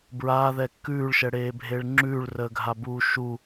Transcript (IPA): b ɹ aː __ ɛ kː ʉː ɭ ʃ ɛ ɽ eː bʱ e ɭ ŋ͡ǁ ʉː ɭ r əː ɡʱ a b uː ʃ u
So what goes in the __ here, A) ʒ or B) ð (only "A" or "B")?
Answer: B